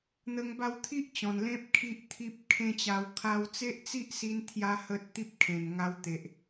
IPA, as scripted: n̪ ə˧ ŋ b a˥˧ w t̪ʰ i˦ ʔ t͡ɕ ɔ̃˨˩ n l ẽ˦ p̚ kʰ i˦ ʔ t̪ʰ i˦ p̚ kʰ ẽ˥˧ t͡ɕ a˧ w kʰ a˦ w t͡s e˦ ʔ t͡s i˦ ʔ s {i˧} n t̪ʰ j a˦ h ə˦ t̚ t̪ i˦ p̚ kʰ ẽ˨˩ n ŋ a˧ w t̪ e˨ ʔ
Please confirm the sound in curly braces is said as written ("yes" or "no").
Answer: yes